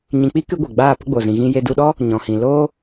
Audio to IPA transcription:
ɲĩ˨k͡pi˦ kɨ˦ɡʷe˨ ɡ͡baː˦˨pə˦ɡ͡bo˨zĩ˨ ɣĩ˧je˧ du˧ɗɔ˦ | ɲɔ̃˨hĩ˨ loː˦

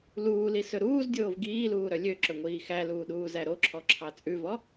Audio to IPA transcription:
luːlisɵ ɾuːzdʲoːv ɡiːluːɾœ lʲøǁɵŋʷiː xæluːɗuːzæ ɾoǁʰɔǁʰɑ t͡sʼʉvɔ

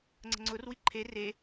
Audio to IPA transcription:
ŋ͡ǀə̤ŋ͡ǀʊrwi ǃʰe re

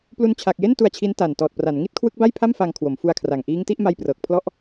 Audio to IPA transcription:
plu˧nt͡ɕʰa˨˩k̚je˥˩n tu˧a̯t͡ɕʰi˦˥n ta˨˩ntɔː˨˩t̚pra˩˦n ŋi˥˩t̚kʰwɯ˦˥k̚ba˥˩jpʰa˥˩m faː˧ŋkʰwo˩˦mfu˧a̯kʰra˨˩ŋ ʔiː˦˥ŋti˦˥ʔma˦˥j prɤː˨˩k̚pʰlɔ˥˩ʔ

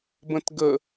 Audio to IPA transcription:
bə̃tɡə

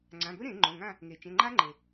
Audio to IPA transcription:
ŋ͡ǀã˩˧˩bɵ˦˥ ɾẽ˨˩˦ ŋ͡ǃõ˩˧˩ŋã˦˨ | ŋe˩t͡ʃẽ˩˧˩ ŋ͡ǃa˦˥ŋ͡ǃe˩

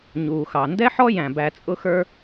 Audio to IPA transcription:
ɲuː˩xɑ˩ ndɛ˥ħɔ˥jæ̃˩ bæ˧t͡sʼʊ˥xə˞˥

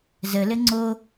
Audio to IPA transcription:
zəlɘ ŋ͡ǀo

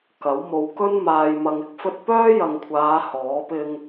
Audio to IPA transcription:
kɐ˨˥w mo˨w kɵ˥nmaː˨j mɐ˨ŋ ɪ˥k̚fɵ˥t̚ pœː˥jɐ˨ŋkʷʰaː˨˧ hɔː˨˥ pɪ˧ŋ

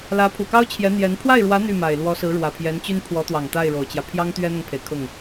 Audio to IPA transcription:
lä˧˥ pʰu˨˩kɑ˥ʊ̯ t͡ɕʰjɛ˧˥n̪jɛ˧˥n pʰwa˥˩ɪ̯ɻwä˧˥ n̪y˥˩ma˨˩ɪ̯lwɔ˧˥ sɹ̩˧˥ɻwä˨˩pʰjɛ˧˥nt͡ɕy˥n pʰwɔ˧˥t̪wɑ˨˩ŋ t̪a˥˩ɪ̯ɻo˨˩ʊ̯t͡ɕjä˦ pʰjɑ˥ŋt̪ɥɛ˥n̪ʊ˨ŋpʰe˩ɪ̯ kʰʊ˥˩ŋ

